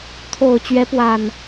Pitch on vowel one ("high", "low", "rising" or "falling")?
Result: low